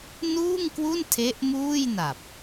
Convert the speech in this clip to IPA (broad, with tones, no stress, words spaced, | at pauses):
nuː˥˩ŋkwu˥˩n tʰe˦˥ʔmuː˥˩jna˨˩p̚